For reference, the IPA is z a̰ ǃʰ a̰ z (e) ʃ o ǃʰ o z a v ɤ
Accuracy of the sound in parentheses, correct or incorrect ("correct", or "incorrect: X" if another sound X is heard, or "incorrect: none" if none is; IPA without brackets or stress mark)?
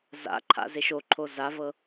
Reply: correct